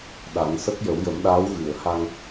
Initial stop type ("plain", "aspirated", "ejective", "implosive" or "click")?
implosive